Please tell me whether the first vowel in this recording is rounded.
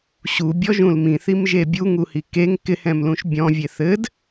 yes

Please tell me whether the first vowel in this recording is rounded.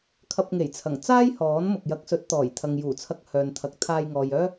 no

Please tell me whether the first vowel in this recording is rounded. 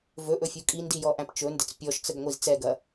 yes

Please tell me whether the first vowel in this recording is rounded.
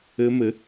no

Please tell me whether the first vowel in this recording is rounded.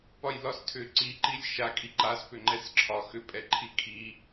yes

